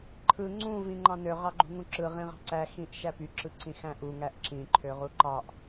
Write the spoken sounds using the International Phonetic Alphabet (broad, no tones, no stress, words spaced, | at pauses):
ǃʰɯ ŋ͡ǀũ vĩŋ͡ǃɑ̃nø ʁɑɡ͡ǃṳŋũǁɯ ʁĩʁɑ̤ǀæ xĩʔʃæpy ǁɯǀĩxæ̃ʔu ŋæʔǁĩ ǃʰøʁuǃɑʔ